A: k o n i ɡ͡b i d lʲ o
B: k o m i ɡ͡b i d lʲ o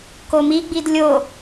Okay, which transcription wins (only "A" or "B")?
B